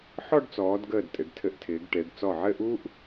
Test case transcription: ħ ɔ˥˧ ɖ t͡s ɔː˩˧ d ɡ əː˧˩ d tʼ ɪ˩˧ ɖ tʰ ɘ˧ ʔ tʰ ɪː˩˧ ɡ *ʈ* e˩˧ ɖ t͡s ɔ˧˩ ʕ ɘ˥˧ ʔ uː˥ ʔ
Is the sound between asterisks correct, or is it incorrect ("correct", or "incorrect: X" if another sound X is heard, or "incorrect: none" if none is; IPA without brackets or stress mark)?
correct